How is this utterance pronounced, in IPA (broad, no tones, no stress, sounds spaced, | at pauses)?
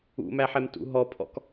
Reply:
ṵ m æ ħ ɛ m t ṵ ɦ ɔ pʰ ɔ̰ k